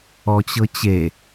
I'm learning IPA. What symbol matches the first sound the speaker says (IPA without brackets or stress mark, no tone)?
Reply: ɔ